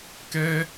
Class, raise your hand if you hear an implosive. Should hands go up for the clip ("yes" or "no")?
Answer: no